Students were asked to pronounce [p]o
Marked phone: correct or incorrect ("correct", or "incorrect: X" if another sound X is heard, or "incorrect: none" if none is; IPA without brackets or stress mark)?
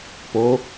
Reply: correct